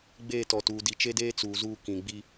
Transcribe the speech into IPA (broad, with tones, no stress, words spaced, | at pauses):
ɡ͡beː˦˨tɔ˨tuː˨ di˨t͡ʃe˦deː˦ t͡suː˨zuː˦ kĩ˨ɡ͡bi˦